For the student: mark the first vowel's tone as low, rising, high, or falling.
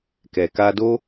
low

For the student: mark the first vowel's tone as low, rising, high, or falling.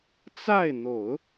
falling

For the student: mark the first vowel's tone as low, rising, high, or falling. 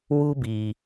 high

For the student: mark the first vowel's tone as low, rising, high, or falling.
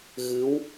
rising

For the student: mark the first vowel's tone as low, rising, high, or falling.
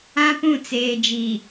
high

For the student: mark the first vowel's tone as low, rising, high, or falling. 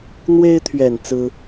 high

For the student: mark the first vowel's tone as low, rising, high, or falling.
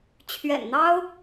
low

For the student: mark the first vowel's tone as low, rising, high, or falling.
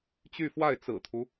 falling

